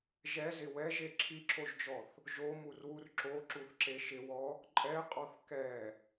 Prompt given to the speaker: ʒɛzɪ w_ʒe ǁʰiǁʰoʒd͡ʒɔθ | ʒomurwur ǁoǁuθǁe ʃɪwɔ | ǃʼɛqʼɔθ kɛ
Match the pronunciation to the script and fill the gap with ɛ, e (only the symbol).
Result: ɛ